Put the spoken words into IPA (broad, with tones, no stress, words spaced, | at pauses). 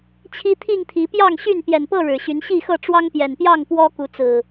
t͡ɕʰi˦t̪ʰi˥˨ŋt̪ʰi˨˦ pjɑ˥˨ŋɕy˥˨n pjɛ˨˩npɤ˥˨ ɻɻ̩˨˩ɕy˨˦nɕi˥˨xɤ˥˨ ʈ͡ʂwɑ˦ŋpjɛ˨˩npjɑ˥˨ŋ pwɔ˦ ku˨˦t͡sɹ̩˨˩